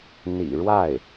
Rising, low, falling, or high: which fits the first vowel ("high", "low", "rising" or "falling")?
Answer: low